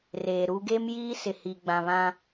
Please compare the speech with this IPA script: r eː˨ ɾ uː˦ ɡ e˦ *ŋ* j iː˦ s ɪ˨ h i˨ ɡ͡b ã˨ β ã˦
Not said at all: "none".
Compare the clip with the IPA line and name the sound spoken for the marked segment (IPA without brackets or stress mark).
m